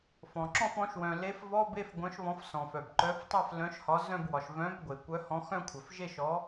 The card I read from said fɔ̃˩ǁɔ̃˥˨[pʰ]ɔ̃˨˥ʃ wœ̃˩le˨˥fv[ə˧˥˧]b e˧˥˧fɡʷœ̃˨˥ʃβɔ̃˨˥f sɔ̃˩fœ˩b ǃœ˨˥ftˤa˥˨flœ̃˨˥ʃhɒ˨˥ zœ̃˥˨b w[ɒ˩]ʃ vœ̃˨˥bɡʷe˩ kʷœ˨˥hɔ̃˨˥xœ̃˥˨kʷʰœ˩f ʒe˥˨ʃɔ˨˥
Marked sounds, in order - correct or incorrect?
incorrect: f, incorrect: ɔ˧˥˧, correct

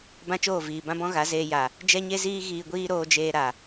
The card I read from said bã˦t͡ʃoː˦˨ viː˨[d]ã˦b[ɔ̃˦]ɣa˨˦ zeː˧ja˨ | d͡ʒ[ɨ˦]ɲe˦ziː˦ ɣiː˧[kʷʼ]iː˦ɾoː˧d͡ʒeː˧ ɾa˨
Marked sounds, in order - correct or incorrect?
incorrect: b, correct, incorrect: ɛ˦, incorrect: ɡʷ

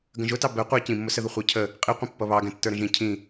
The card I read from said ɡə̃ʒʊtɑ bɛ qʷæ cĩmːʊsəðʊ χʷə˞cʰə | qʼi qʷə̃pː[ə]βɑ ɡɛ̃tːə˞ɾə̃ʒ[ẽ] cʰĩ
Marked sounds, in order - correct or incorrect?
incorrect: ʌ, incorrect: ĩ

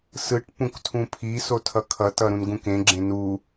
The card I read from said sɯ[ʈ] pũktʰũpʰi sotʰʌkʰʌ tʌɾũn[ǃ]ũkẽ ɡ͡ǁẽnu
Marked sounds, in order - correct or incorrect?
correct, incorrect: ɡ

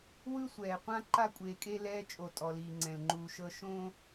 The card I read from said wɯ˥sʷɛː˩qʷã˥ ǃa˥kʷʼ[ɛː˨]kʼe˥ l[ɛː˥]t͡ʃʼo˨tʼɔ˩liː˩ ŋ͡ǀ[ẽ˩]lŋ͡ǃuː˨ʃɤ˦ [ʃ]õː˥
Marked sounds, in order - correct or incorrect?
incorrect: eː˨, incorrect: ɛː˦, incorrect: ɛ̃˩, correct

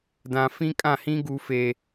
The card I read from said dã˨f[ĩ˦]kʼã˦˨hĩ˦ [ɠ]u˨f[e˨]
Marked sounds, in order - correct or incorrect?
correct, incorrect: ɡ, correct

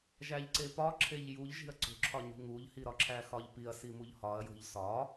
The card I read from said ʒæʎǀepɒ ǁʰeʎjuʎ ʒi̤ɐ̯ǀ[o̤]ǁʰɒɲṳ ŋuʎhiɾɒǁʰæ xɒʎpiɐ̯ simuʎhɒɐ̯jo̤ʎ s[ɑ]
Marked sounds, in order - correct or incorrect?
correct, incorrect: ɒ

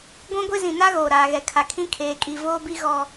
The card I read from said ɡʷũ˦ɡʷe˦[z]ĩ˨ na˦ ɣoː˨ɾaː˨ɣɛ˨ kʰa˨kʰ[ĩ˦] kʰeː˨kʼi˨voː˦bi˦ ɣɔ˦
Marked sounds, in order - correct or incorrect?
correct, correct

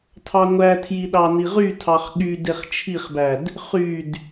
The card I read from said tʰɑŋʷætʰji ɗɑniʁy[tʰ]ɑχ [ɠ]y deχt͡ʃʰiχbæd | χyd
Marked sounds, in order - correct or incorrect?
correct, correct

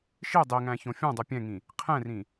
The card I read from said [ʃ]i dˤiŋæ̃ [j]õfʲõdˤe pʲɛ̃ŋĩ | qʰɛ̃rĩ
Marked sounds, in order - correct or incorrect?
correct, incorrect: ç

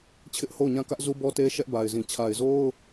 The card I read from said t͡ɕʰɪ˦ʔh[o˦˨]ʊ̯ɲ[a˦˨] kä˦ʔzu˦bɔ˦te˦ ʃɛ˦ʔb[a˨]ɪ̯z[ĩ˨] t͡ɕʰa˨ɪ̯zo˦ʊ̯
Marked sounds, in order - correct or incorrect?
correct, incorrect: ã˦˨, correct, correct

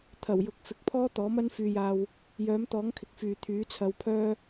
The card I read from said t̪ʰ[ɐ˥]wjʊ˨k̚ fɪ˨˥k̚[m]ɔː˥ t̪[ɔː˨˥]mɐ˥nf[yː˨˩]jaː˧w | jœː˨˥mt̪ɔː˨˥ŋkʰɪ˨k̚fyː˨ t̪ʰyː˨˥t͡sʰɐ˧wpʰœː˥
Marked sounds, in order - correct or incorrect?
incorrect: ɐ˨˩, incorrect: pʰ, correct, incorrect: yː˧

